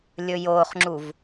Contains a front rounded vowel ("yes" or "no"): no